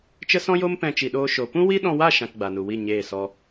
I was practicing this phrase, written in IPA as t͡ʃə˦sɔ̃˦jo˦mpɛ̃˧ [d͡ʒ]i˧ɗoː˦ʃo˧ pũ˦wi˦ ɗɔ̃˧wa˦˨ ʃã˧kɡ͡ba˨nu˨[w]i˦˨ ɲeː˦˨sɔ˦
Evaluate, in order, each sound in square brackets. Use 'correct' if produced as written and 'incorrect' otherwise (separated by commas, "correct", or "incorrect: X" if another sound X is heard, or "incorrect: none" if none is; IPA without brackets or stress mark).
incorrect: t͡ʃ, correct